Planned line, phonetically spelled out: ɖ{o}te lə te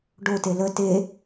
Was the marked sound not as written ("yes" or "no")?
no